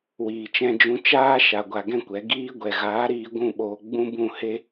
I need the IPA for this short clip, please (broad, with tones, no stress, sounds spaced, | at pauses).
w iː˨ t͡ʃ ɛ̃˧ d͡ʒ ũ˧ t͡ʃ aː˦ ʃ a˧ ɡʷ a˧ ɡ ɛ̃˦ kʷ ɛ˨˦ ɡ iː˦ ɡʷ ɛ˨ ɣ aː˨˦ ɾ iː˧ ɡʷ ũ˦˨ ɓ oː˧ ɡ͡b ũ˦ b ũ˦˨ h e˦